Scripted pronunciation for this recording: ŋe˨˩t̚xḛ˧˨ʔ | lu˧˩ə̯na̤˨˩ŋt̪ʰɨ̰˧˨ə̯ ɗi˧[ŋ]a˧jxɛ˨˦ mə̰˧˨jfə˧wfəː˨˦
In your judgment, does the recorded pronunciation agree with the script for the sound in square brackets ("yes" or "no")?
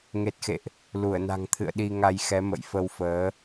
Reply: yes